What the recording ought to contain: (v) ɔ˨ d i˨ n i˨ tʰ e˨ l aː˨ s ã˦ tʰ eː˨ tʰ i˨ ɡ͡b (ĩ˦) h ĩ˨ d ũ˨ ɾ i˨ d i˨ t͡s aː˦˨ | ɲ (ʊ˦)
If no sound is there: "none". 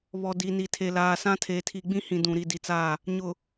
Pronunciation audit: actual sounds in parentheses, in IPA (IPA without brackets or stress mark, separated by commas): β, ĩ˦, ʊ˨